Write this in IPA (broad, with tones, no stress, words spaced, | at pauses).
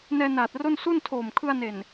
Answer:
nɛː˧naː˨˩t̚ro˥˩n su˥˩ntʰoː˨˩m kʰɯ˧a̯ne˨˩n